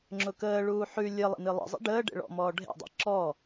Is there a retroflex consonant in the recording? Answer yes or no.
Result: yes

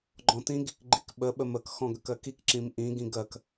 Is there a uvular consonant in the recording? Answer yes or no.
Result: no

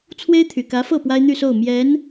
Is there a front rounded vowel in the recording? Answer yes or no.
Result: yes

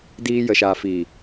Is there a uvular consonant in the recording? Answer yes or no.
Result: no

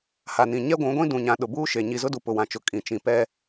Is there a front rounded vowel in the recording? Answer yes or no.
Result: no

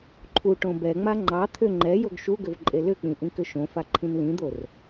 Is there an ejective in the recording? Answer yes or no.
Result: yes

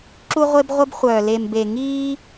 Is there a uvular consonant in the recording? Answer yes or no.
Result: yes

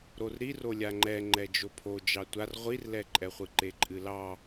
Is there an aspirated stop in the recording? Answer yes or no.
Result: yes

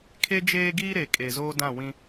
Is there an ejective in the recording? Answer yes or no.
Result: yes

